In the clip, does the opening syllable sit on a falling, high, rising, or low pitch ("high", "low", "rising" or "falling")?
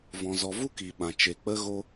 low